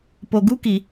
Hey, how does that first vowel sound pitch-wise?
low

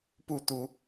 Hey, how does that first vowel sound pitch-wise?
falling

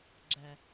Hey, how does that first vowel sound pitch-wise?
low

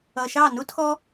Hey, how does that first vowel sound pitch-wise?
low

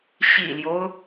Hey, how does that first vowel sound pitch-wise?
low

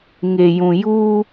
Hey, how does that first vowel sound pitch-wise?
low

